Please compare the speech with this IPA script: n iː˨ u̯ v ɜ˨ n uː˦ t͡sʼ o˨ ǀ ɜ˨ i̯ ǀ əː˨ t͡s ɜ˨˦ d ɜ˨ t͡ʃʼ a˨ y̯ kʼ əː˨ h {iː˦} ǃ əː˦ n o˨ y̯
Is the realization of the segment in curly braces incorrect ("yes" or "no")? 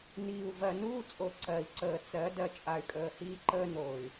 no